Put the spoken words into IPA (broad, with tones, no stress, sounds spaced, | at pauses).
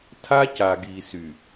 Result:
tʰ a˦ c a˨ ɡ i˨ s y˨